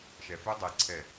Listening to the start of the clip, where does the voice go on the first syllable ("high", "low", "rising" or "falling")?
low